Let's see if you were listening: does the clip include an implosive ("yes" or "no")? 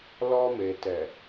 no